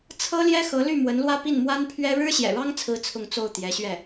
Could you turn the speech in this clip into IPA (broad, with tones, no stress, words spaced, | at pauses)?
t͡sʰɤ˥ljɛ˥xɤ˧˥ly˥˩ mwə˧˥nlwä˥pi˥˩n mwa˥npʰɥɛ˥ ɻɻ̩˥ɕjɛ̰˨˩ɻɑ˥ŋt͡sʰɹ̩˧˥ t͡sʰʊ˥˧ŋt͡so˥˩ʊ̯t̪jɛ˧˥ɕɥɛ˥˩